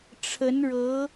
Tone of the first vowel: rising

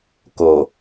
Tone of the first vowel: low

